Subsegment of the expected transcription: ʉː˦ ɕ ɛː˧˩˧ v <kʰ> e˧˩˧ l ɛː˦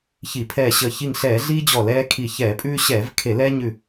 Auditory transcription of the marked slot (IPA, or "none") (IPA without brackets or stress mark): kʰ